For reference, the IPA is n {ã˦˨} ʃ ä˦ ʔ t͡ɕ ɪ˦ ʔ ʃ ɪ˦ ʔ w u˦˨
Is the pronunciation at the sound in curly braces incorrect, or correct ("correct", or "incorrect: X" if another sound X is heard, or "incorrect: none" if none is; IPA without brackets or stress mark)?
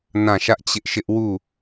correct